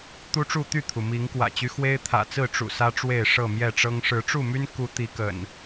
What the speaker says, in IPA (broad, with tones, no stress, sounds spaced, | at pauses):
t̪ u˦ ʈ͡ʂ u˥˨ t̪ y˥˨ t̪ʰ u˩ m i˨˦ ŋ k w ä̰˨˩ t͡ɕ y˦ x w e˦ ɪ̯ t̪ʰ ä̰˨˩ t͡s ɹ̩˥˨ ʈ͡ʂ ṵ˨˩ s ä˦ ʈ͡ʂ w e˥˨ ɪ̯ ʂ ɤ˥˨ m j ɛ˥˨ ʈ͡ʂ ɤ˦ ŋ ʂ ɻ̩˨˦ ʈ͡ʂ u˥˨ m y˦ n k u˨˦ t̪ i˨˦ k ə̰˨˩ n